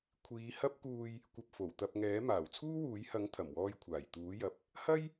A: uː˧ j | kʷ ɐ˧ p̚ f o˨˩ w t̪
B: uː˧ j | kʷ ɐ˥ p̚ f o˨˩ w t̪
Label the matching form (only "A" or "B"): A